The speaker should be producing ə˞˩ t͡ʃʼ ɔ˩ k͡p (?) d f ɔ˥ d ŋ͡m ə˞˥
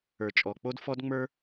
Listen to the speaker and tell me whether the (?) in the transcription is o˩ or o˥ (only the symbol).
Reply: o˥